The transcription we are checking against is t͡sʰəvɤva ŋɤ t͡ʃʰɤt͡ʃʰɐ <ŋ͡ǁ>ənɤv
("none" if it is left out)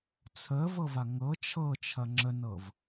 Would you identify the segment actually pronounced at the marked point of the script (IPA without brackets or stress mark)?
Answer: ŋ͡ǁ